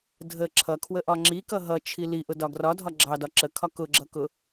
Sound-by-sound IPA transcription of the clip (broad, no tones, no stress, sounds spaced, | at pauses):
dʱ ə ǁʰ ʌ kʰ w ə ʔ ɒ ŋ͡ǁ i k ʌ ɦ ʌ t͡ʃʰ i l i ʔ ʊ d ɒ ɡ r ɒ dʱ ɒ ɡ͡ǁ ɑ d ɒ ǁ ə kʰ ɒ k ʊ ɡ͡ǁ ʌ k ʊ